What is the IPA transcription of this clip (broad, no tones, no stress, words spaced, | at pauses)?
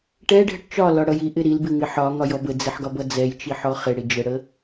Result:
ʈɛɖʱəʈ t͡ʃɒlɒɽʌj iʔɪ ɾilbɪŋɪ ħɒŋɒjɔ bəd͡zɪħɡɒbʌ d͡zɛjt͡ʃiħɔ χɪɽɪ d͡ʒəɽə